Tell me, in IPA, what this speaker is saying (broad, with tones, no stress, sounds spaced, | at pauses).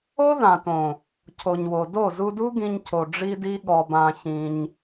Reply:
o˦ ð ã˨ t õ˨ | cʰ o˨ ɲ w o˨ d o˦˨ z u˧ d u˦ ɡ ĩ˧ ɲ cʰ o˨ ɖ͡ʐ i˦ d i˦ ɠ ɔ˧ b ã˧ ç ĩ˧ ɲ